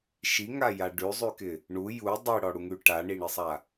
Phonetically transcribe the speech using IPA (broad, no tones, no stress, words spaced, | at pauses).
ʃiŋaja ɖʉzˤʉkɪ | ɳu ju dˤiɽɔɽuŋʉ ʈaɳiɳɪsˤa